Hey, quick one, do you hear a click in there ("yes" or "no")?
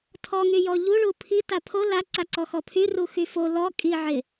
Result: yes